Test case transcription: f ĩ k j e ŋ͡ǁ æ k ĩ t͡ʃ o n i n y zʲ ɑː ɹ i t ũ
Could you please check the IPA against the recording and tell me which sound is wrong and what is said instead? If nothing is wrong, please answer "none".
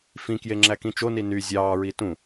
none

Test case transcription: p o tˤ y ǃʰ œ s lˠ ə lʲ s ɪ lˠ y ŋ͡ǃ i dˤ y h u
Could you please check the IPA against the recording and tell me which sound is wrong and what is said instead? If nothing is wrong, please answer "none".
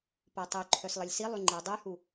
ɪ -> i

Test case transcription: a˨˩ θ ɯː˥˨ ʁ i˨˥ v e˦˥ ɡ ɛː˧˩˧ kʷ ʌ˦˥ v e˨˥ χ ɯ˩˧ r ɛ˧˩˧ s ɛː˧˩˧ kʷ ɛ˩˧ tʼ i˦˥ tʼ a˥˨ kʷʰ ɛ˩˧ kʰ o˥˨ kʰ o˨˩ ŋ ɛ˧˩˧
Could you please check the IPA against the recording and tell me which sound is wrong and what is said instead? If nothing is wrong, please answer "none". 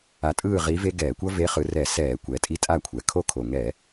θ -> tʼ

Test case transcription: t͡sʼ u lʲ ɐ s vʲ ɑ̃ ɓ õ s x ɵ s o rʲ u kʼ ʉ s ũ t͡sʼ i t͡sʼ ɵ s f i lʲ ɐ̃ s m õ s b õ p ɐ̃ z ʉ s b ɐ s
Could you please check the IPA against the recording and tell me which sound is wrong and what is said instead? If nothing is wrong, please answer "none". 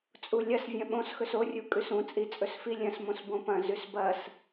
ɑ̃ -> ɐ̃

